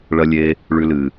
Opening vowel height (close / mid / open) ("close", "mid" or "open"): open